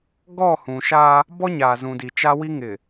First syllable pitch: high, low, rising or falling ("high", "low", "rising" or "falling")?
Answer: falling